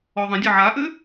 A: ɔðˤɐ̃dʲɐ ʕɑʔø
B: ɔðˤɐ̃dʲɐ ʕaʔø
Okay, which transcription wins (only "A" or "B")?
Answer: B